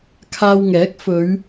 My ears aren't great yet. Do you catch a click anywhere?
no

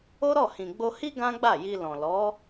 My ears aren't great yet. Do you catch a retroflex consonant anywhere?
no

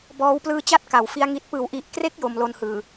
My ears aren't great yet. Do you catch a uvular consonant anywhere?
no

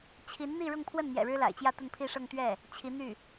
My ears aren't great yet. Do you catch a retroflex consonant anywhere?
yes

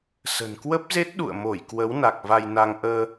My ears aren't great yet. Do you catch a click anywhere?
no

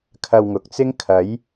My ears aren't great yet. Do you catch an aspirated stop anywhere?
yes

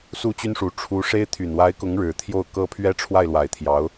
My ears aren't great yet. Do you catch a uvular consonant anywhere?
no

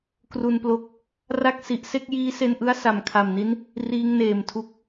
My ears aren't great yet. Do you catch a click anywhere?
no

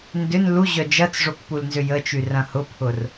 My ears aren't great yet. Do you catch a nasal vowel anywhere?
yes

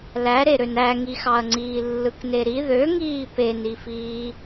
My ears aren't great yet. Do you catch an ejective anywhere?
no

